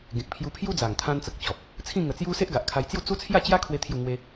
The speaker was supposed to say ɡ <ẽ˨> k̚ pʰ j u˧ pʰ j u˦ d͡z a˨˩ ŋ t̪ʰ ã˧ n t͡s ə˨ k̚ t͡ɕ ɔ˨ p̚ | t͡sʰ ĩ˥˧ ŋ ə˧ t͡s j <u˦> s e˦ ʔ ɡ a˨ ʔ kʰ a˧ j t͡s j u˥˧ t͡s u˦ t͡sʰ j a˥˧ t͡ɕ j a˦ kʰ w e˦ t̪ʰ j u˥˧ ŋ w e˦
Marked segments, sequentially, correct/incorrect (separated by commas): correct, correct